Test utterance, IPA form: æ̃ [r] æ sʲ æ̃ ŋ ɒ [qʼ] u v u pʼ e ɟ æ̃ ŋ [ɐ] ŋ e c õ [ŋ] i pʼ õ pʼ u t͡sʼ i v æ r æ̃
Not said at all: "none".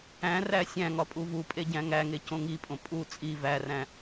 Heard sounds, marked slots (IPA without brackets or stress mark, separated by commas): r, pʼ, æ, ŋ